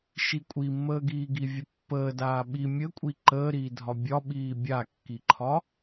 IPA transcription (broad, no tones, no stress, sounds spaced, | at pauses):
ʃ i kʷʼ i mː əː ɡ iː ɡ i vʲ ə pː əː d aː ɓ i mʲ ə kʷʼ i ǃ əː ɾ iː dʱ ɒ bʲ ɒ ɓ iː bʲ a kː i ǃʰ ɒ